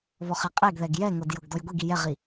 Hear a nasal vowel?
no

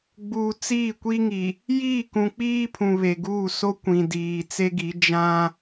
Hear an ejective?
no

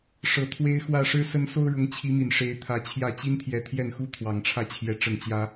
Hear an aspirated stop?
yes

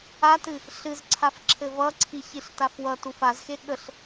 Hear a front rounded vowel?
no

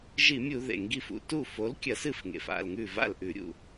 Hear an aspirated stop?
no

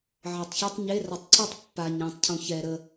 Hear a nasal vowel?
yes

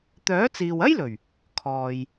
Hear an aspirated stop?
yes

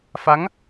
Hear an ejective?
no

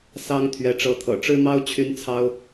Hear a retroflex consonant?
yes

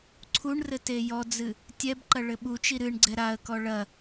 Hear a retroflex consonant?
yes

